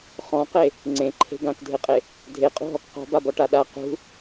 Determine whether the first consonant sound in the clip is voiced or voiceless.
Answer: voiceless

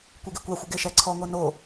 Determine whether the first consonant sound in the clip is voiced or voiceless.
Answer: voiceless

